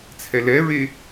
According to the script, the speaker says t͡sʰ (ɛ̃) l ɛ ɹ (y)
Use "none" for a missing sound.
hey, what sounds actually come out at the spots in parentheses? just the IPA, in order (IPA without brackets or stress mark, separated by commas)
ɛ, e